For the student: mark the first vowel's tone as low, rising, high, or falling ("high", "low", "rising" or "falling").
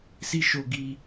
high